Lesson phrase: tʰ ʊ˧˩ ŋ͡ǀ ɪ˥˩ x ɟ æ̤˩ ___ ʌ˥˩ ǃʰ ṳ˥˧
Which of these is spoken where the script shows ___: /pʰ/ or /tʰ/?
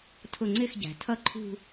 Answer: tʰ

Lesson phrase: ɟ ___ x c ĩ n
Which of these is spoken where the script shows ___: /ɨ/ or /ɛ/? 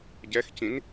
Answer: ɛ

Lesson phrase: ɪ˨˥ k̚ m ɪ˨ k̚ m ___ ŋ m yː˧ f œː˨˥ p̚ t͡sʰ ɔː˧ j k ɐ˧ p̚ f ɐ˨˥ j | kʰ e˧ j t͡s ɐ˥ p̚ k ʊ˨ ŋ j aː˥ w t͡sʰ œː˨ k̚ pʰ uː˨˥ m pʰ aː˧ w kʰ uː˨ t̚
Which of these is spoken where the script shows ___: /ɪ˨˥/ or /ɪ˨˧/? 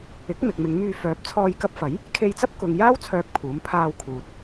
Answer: ɪ˨˧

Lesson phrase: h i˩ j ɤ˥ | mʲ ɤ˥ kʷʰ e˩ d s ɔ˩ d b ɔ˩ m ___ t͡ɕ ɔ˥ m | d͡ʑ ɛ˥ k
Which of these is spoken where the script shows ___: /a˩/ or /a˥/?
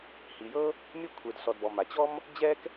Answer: a˩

